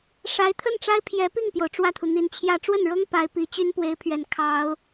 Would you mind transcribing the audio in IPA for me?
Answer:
ʂ a˧˥ ɪ̯ t̪ʰ ə˥˩ n ʈ͡ʂ a˥ ɪ̯ pʰ j ɛ˧˥ p i˥˩ ŋ p j o˩ ʊ̯ ʈ͡ʂ w ä˥˩ t̪ʰ u˩ n̪ i˧˥ n t͡ɕʰ j ä˥˧ ʈ͡ʂ w ə˥˩ n ɻ ɤ˥ ŋ p a˧˥ ɪ̯ p i˧˥ t͡ɕ y˥ n p w e˧˥ ɪ̯ pʰ ɥ ɛ˨˩ n kʰ ɑ˧˥ ʊ̯

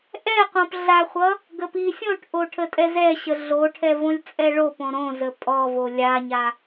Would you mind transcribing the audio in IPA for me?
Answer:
ʔ ɛ q õ p ɮ a χʷ ʌ | ɡ ə p i sʲ õ ʈ ʔ o ʈʰ ə tʼ ɛ z ɛ ɕ ə ɮ o ʈʰ ɛ v õ lʲ t͡sʼ ɛ ɭ o p õ ɾ õ z ə pʼ ɔ v o lʲ a ɲ a

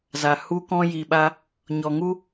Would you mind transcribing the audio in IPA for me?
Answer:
z a˨ h u˦ k ɔ̃˦ j i˨ ɓ a˧ | ɲ ɔ˨ ŋ u˦

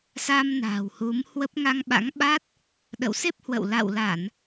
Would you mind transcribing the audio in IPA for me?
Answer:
s a˧ m n a̤ː˨˩ w h u˨˦ m h w ə˦˥ p̚ ŋ a˧ ŋ ɓ a̰˧˥ ŋ ɓ a˦˥ t̚ | ɗ ə̰˧˨ w s e˦˥ p̚ h w ə̰˧˨ w l a̰˧˨ w l a˧˩˨ n

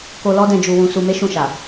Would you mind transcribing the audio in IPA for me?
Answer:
k o˧ l ɔ˦ d ɛ̃˧ d͡ʒ u˨ w ũ˨ s u˧ m e˦ ʃ ũ˦˨ ʃ a˨

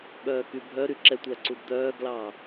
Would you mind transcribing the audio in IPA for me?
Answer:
ɓ œː k y bʱ œ ɾ y ǁ ɛ tʷ æ ǀ u d d̪ œː ɡ l ɑː

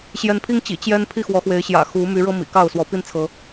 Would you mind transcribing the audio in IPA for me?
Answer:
ɕ j ɛ˨˦ n pʰ i˦ ŋ t͡ɕ ḭ˨˩ t͡ɕ j ɛ˦ n pʰ i˥˨ x w ɔ˨˦ x w e˨˦ ɪ̯ ɕ j ä̰˨˩ x u˨˦ m y˨˦ ɻ ɤ˦ m ḭ˨˩ k ɑ˥˨ ʊ̯ s w ɔ˨˦ p i˦ n t͡sʰ ɤ˨˦

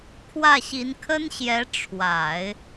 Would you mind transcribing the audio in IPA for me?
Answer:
kʰ w ä˥˩ ɕ i˧˥ n kʰ ə˥ n ɕ j ɛ˧˥ ʈ͡ʂʰ w a˨˩˦ ɪ̯

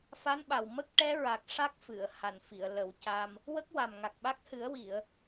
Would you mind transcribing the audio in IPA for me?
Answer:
f a˧˥ n ɓ a˨˩ w m ə˦˥ k̚ ʈ ɛ˧˥ ɹ a˨˩ k̚ ʂ a˦˥ k̚ f ɨ˨˩˨ ə̯ h a˨˩ n f i˨˩˨ ə̯ l ə˨˩˦ w c a˧ m | w ə˦˥ k̚ w a˨˩ m ŋ a˨˩ k̚ ɓ a˦˥ k̚ h ɨ˨˩˦ ə̯ w i˨˩˨ ə̯

